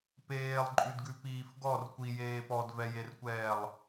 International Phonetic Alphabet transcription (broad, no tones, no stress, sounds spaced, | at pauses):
p eː lˠ ǃʼ ʉ d ɡ ʉ p iː f ɡ ɔ r kʷ i j eː p ɔ d v ɛ j e r kʷ ɛː lˠ